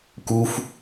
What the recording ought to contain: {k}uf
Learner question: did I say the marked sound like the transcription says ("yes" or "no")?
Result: yes